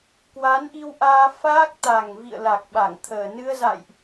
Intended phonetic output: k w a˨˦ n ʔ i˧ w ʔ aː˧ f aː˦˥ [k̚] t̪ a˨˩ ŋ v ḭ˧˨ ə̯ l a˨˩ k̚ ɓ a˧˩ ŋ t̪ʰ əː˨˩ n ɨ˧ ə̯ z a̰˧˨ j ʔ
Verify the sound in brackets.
correct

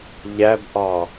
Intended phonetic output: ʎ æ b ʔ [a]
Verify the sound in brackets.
incorrect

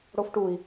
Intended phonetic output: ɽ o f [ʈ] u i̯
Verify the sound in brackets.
correct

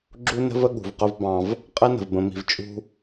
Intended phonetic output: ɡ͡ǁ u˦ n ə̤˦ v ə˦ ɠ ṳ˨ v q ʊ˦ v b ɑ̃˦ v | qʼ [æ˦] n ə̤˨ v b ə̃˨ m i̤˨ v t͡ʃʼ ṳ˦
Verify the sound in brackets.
incorrect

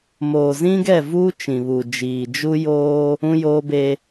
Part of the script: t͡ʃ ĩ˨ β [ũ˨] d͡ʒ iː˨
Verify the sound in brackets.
incorrect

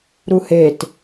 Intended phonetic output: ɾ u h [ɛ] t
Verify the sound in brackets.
incorrect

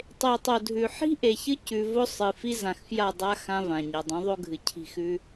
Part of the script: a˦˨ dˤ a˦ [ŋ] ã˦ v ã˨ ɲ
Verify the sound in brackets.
incorrect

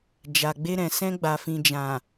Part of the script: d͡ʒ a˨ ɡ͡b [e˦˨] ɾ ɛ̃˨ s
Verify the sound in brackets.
incorrect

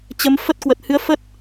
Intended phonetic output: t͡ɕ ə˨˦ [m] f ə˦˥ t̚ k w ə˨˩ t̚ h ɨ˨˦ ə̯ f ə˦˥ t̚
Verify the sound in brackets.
correct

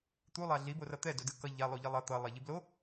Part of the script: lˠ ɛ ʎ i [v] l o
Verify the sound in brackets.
incorrect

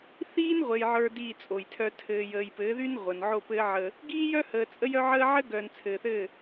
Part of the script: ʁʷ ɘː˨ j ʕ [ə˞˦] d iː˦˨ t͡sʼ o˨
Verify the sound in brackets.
correct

